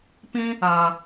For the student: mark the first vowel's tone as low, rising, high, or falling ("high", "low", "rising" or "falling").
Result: high